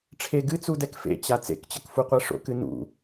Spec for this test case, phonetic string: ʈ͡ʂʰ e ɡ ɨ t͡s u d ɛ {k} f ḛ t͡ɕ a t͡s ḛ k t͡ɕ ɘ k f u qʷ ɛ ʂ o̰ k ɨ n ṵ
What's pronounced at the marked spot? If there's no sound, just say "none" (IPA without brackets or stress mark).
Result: k